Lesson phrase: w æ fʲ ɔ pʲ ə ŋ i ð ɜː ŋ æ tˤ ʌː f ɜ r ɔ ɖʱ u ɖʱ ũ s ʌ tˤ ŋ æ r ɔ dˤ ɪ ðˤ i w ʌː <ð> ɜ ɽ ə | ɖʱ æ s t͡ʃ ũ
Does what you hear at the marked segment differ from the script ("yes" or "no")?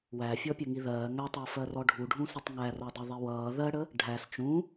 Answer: no